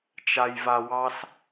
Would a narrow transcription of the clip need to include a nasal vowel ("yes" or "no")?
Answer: no